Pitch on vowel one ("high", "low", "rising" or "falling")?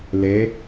rising